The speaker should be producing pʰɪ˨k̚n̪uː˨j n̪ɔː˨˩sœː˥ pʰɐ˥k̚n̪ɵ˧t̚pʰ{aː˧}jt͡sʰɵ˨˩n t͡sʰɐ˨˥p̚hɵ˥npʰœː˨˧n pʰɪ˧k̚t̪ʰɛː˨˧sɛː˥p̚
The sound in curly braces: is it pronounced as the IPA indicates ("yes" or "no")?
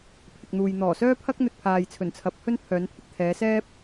no